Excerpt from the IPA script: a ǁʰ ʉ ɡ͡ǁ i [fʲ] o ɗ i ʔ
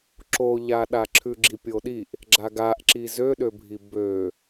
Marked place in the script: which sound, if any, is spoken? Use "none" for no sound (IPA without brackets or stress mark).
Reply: pʲ